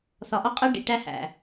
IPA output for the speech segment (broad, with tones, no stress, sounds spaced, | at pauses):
θ ɒ˨ ʔ ɒ˦ qʼ æ˦ ɖ ḭ˨ ʈ æ˦ h æ̰˨